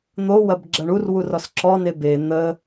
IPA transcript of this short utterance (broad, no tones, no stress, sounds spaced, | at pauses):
n̪ o w ɐ b ɡ͡ǁ ɐ ɳ u r w u r ɔ s ǁ ɔ n e b e n̪ ə